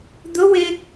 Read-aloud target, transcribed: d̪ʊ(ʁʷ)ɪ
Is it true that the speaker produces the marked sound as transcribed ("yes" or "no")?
no